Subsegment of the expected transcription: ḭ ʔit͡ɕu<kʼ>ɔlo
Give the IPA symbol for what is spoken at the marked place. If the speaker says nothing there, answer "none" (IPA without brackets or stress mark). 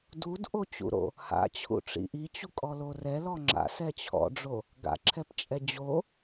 kʼ